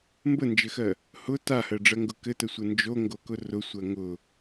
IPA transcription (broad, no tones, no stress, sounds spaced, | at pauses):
m b ə n d͡ʒ ɘ x ɜ | h ʊ t a h ɜ ɖ͡ʐ ɜ ŋ ɡ ʊ k ɘ t ə sʷ ə n d͡ʒ o ŋ ɡ o k ʊ r ʊ sʷ ɜ ŋ ʊ